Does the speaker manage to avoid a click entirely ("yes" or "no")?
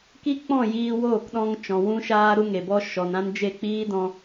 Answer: yes